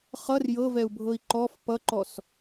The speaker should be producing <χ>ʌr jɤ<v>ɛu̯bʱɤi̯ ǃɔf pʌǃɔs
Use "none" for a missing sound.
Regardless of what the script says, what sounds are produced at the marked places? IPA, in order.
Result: χ, v

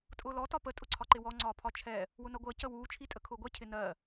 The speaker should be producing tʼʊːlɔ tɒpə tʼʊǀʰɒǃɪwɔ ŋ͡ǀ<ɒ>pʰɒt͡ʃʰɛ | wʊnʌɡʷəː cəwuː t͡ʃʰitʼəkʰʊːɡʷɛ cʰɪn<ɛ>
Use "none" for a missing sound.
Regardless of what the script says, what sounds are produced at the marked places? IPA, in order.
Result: ɒː, ɜ

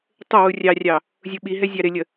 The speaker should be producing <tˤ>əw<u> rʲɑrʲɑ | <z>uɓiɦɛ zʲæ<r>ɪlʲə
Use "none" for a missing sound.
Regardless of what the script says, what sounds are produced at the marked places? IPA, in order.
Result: tˤ, u, zʲ, ɾ

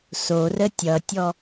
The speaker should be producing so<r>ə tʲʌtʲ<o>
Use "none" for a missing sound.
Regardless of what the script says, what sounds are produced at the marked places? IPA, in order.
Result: r, ɔ

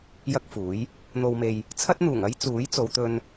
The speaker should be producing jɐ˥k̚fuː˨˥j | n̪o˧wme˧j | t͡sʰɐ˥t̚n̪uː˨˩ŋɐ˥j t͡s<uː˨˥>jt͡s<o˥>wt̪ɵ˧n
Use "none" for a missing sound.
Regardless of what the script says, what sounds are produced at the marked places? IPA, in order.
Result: uː˨˥, o˨˧

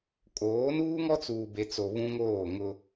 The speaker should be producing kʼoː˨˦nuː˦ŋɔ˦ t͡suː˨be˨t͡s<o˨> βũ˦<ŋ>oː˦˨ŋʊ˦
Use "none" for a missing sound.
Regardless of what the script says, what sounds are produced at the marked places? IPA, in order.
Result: o˨, ŋ

